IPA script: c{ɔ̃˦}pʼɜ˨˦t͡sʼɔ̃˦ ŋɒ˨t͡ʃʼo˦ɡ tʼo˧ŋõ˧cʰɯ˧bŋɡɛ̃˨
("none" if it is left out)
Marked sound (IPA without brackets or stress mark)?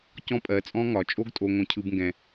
ɔ̃˦